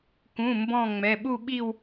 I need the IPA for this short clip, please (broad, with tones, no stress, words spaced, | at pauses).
kũ˩˧˩mbɔ̃˧˩ ŋ͡mɛ˩˧˩ɓu˥˧ɓi˥˧w